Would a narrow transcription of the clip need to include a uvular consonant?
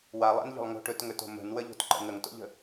no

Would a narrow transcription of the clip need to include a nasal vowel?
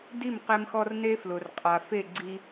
no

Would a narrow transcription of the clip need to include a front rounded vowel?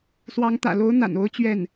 no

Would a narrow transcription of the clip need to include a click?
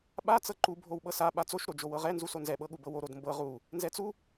yes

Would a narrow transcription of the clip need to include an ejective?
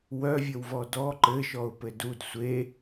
no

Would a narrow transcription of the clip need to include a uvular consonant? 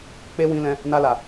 no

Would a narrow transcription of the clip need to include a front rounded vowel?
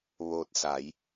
no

